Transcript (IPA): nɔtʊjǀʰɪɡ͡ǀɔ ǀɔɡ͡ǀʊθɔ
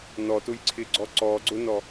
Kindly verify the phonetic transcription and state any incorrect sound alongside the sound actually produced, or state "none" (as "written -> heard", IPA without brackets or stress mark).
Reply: θ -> n